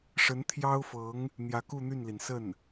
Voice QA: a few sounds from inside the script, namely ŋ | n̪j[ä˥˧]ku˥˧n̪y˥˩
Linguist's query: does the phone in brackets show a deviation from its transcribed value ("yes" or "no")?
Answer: yes